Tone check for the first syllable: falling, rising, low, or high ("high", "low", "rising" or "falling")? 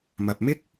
low